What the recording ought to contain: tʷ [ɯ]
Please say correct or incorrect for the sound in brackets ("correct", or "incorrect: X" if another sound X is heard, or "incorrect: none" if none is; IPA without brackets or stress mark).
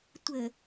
incorrect: ə